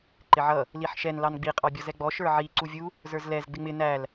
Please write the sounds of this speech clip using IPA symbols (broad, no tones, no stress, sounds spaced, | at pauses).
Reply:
ǃ ɪ ʕ ʌ | l i ħ ʃ ɛ n l ɑ n ɡ͡b i qʼ ɑ bʲ ɔ z ɛ ɡ͡b ɔ ʃ ə˞ ʕ i ǀ u vʲ u | z ə˞ z l ɛ z ɡ͡b ɪ ŋ͡m ɪ n æ l